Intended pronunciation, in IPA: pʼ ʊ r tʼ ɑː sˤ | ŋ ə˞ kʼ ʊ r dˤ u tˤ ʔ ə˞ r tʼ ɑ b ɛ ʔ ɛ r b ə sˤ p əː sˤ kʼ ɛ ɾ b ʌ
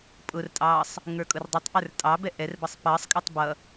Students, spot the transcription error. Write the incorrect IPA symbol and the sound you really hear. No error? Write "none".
ɾ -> tˤ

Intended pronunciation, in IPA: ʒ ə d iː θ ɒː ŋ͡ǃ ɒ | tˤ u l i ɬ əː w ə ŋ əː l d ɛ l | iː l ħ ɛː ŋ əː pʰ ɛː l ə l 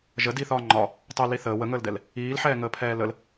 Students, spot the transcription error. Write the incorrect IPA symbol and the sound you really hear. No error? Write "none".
ɬ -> θ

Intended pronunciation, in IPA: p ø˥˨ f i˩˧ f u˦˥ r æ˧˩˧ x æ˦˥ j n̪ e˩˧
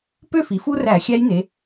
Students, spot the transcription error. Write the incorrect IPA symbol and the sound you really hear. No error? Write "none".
x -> xʲ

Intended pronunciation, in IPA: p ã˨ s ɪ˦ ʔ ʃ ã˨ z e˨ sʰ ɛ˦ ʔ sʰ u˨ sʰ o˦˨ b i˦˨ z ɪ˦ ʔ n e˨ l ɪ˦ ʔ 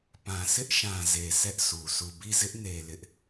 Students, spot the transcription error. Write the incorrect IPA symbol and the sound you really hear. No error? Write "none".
o˦˨ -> u˦˨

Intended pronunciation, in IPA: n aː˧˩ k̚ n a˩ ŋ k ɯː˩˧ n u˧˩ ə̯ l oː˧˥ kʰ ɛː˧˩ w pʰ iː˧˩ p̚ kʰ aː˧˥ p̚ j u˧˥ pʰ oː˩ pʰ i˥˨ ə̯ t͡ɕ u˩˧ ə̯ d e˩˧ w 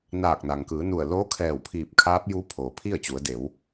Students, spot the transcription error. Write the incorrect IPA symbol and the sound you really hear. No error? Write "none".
none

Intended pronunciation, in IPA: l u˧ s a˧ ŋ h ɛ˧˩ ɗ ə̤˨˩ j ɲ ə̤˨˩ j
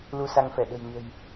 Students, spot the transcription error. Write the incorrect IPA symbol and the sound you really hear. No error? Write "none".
h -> f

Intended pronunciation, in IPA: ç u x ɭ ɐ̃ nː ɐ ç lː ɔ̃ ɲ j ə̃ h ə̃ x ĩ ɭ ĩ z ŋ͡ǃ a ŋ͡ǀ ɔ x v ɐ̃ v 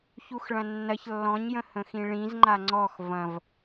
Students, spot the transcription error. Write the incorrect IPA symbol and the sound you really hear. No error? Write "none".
none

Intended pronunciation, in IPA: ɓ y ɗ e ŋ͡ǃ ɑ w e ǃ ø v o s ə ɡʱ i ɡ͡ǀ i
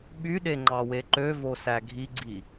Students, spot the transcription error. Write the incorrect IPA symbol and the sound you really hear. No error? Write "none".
ə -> æ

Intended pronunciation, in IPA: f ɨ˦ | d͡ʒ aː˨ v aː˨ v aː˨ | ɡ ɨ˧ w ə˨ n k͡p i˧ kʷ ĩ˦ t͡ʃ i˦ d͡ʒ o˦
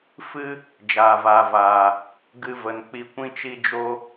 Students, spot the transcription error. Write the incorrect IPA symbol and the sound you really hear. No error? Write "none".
w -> v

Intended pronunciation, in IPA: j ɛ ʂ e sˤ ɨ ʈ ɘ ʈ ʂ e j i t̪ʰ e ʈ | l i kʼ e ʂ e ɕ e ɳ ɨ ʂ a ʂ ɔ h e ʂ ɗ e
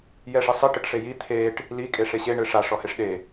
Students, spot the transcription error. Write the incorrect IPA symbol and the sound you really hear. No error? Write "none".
none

